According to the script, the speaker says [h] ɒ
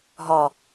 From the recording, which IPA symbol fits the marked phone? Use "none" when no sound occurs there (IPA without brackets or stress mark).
ɦ